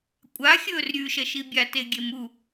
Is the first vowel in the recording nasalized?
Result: no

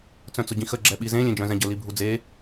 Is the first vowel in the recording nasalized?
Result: yes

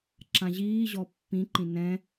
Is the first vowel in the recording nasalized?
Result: yes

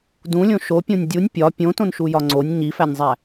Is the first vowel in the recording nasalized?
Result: yes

